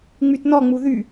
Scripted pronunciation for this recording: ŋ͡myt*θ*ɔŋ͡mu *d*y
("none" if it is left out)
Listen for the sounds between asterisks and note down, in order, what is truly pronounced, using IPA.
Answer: n, ð

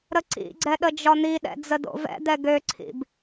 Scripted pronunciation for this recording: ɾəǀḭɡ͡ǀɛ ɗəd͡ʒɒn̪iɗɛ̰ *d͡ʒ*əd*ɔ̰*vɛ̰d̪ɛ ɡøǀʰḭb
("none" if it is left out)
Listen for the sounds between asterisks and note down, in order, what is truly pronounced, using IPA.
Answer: d͡z, o̰

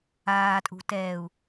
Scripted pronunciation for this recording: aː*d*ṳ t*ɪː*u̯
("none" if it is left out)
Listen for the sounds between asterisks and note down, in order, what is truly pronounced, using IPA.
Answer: tʼ, ɛː

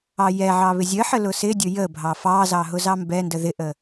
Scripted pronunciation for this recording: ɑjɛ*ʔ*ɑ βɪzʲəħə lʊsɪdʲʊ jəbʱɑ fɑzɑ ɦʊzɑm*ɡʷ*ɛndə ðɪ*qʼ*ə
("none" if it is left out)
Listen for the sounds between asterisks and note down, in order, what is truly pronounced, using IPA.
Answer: ʕ, b, ʔ

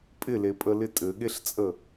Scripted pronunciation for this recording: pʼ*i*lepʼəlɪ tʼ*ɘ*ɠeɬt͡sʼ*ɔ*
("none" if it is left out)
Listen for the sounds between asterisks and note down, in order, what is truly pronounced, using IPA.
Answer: ɪ, ɘ, ə

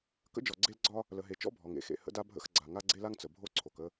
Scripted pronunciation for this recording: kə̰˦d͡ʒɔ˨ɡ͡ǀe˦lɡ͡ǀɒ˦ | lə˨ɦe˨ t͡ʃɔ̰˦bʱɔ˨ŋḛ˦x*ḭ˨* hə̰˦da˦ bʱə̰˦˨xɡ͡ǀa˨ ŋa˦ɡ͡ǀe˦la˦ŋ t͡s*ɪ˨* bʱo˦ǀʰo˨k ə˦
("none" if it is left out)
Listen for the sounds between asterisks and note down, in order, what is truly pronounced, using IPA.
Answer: ḛ˨, ə˨

